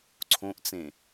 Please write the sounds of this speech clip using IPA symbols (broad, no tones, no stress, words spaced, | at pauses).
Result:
ǀʰõʔt͡sẽ